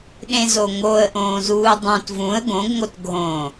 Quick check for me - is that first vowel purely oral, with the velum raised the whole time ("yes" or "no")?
no